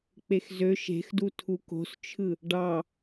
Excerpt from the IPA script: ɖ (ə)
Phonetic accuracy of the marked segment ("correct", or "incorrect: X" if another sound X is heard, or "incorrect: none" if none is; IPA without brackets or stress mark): incorrect: ɑ